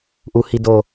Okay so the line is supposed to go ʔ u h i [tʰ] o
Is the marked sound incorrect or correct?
incorrect